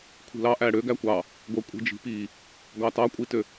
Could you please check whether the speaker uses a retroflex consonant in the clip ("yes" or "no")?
yes